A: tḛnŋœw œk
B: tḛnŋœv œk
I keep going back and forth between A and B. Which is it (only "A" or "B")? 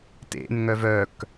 B